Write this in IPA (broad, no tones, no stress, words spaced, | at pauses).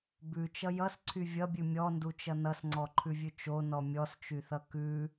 bʉt͡ʃʌ jʌsǀʰy vʲʌbʲʉ mʲɔndut͡ʃʌ nʌsŋ͡ǀɔǃʰʉvʲʉ t͡ʃonɔ mʲɔst͡ʃyθʌ kʉ